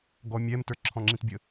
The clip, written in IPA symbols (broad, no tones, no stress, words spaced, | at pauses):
ɡɔmʲɛm tə˞ǁʰɔ̃ŋ͡ǁĩtbʲə